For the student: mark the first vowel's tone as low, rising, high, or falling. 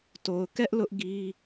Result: low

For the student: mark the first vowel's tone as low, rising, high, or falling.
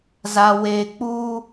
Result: low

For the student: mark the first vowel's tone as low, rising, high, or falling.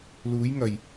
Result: rising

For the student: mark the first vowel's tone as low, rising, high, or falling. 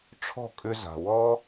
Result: falling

